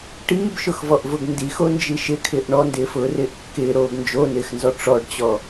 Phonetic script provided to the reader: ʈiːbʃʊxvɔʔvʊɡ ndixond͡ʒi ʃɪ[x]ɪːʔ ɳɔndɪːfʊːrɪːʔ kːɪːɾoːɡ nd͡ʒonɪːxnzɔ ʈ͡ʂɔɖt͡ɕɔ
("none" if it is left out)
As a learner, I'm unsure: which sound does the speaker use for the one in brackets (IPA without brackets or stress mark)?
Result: kʰ